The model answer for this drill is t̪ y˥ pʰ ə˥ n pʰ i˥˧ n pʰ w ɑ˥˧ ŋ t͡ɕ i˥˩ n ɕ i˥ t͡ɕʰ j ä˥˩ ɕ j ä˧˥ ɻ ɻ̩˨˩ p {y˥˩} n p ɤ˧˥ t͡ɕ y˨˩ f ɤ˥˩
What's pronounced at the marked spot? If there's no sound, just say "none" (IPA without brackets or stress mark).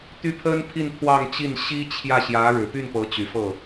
y˥˩